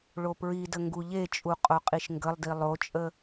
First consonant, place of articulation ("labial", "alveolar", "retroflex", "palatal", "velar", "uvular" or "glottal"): retroflex